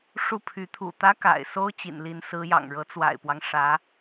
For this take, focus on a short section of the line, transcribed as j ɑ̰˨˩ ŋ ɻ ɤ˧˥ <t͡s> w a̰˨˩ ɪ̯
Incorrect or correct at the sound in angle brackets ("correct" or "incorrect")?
correct